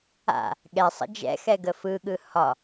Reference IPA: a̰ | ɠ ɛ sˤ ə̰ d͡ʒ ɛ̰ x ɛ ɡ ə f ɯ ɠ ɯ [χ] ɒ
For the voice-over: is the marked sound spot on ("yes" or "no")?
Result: no